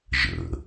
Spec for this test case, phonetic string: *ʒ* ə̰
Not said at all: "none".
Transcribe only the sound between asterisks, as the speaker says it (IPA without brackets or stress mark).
ʒ